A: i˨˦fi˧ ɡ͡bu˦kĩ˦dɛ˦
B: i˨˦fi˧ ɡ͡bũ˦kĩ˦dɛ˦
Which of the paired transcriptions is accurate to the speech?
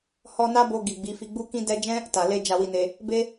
A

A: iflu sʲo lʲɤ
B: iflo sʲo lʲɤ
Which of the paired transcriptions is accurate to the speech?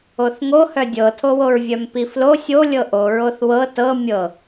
B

